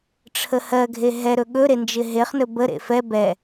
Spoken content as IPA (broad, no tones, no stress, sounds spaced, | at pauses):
ʈ͡ʂʰ ə h ɜ ɡʱ e ɦ ɛ ɾ ɵ ɠ ɵ ɾ e n d͡ʒ ɪ ɦ e χ n ɵ b ə ɾ ḛ f ɛ b ɛ